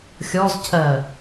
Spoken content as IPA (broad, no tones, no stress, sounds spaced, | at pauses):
xʲ ɔ z cʰ ɜ